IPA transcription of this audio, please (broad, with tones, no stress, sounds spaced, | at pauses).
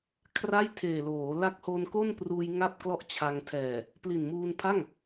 kʰ r a˥˩ j tʰ eː˨˩ l oː˩˦ l a˦˥ k̚ h o˧ n k o˥˩ n p r uː˧ j ŋ a˥˩ p̚ k l ɔ˥˩ ʔ t͡ɕʰ a˧ ŋ tʰ ɛː˨˩ | p l i˨˩ n m uː˧ n pʰ a˥˩ ŋ